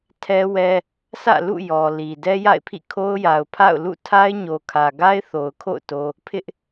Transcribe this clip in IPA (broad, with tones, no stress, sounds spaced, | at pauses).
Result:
tʰ ɛ˦ w ɛ˦ | s ä̰˦˨ l ṵ˦˨ j ɔ˨ l i˨ d ɛ˦ j a̰˦˨ ɪ̯ pʰ ḭ˦˨ kʰ o˦ ʊ̯ j a˨ ʊ̯ pʰ a̰˦˨ ʊ̯ l ṵ˦˨ tʰ a˦ ɪ̯ ɲ o˨ kʰ ä˨ ɡ a˦ ɪ̯ θ o˨ ʊ̯ kʰ o̰˦˨ ʊ̯ t o˦ | pʰ ɪ˦ ʔ